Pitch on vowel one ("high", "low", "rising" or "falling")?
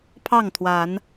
falling